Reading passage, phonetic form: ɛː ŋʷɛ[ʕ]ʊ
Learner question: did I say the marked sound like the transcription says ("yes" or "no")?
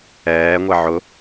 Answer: yes